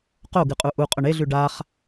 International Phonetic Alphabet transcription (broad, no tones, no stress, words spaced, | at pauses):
qoɡɨqʼu ʔuqʼɵɳ eɮʉ ɖaχ